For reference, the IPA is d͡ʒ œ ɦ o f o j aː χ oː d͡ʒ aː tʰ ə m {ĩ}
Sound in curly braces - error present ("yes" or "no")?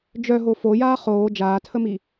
yes